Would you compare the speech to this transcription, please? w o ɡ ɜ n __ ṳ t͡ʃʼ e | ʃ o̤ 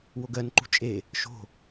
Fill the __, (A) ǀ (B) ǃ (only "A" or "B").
B